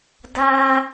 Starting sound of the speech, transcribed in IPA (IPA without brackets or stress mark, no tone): d